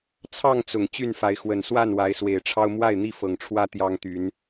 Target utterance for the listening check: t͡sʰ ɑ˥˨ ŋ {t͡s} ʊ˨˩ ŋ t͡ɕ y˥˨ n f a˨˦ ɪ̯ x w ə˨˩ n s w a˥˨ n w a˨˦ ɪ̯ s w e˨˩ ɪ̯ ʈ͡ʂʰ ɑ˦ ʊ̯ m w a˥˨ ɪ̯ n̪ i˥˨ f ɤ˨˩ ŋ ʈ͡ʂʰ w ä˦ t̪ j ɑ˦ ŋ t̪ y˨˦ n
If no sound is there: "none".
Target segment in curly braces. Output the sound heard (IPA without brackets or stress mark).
t͡s